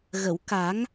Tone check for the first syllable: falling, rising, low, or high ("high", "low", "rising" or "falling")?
low